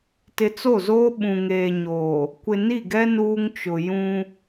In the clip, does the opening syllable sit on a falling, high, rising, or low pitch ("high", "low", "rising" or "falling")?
low